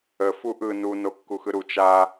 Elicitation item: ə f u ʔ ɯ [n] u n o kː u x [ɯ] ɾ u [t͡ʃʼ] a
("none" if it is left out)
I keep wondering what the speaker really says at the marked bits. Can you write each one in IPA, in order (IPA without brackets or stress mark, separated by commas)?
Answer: n, ɯ, t͡ʃ